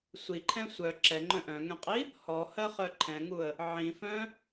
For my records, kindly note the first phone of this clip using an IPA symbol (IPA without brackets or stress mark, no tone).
sʷ